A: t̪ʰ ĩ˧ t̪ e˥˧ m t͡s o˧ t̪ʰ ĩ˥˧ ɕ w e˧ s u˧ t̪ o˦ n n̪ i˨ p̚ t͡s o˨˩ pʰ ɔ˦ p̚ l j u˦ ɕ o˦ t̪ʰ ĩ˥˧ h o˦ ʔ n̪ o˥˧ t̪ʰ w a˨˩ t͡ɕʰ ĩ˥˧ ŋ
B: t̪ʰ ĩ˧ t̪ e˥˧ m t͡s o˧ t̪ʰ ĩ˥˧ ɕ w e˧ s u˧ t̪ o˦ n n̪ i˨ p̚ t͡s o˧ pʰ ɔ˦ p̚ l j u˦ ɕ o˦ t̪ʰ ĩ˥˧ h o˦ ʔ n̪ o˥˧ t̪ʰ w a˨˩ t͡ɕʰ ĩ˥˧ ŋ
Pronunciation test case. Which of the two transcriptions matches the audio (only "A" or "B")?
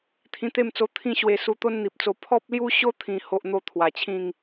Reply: B